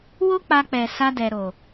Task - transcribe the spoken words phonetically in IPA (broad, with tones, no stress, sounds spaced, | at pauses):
w o˦ k͡p a˧ k͡p ɛ˨ s a˧ d ɛ˨ ɾ o˨